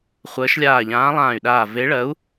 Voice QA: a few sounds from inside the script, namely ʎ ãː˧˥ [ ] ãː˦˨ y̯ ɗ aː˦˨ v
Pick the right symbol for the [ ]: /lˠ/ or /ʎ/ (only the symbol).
lˠ